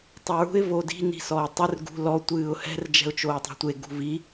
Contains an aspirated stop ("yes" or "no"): no